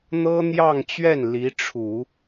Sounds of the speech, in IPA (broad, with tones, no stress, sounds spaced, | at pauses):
n̪ ɤ˥ n̪ j ɑ˥˧ ŋ t͡ɕ ɥ ɛ˥˩ n l i˧˥ ʈ͡ʂʰ u˨˩˦